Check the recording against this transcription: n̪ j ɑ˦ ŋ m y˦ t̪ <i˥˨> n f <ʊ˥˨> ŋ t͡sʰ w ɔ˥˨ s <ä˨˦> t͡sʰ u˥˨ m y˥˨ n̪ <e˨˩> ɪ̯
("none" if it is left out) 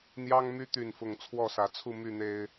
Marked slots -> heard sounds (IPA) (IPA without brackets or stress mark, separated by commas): y˥˨, ʊ˥˨, ä˨˦, e˨˩